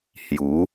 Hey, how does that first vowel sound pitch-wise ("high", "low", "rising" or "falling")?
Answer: rising